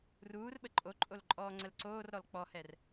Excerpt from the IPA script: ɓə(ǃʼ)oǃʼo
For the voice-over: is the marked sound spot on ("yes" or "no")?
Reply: yes